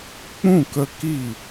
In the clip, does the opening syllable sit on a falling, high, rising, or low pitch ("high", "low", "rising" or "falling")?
falling